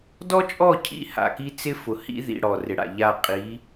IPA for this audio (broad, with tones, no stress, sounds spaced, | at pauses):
d ɔ˦ t͡ʃʼ ɔ˦˨ cʰ ḭ˦ h a̰˨ k i˦ t͡s ɪ˦ f ʊ˨ h ḭ˦ ð ḭ˨ ɽ ɔ˨ r ɪ˨ ɽ a̰˨ ʎ a˦˨ qʼ i˨˦